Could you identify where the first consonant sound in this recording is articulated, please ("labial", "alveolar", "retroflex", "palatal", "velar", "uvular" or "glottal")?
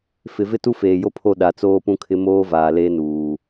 labial